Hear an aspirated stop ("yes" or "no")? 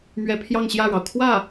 yes